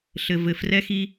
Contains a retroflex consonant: no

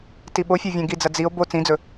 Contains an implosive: yes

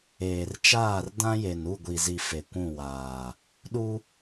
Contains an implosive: yes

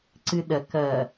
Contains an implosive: yes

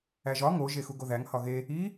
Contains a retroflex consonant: no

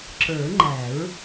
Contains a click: yes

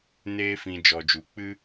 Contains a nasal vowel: yes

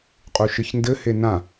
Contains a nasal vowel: yes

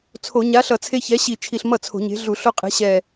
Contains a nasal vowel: no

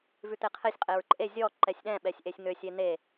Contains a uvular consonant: yes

